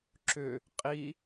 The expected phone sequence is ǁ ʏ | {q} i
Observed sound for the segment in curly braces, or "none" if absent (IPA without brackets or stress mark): qʼ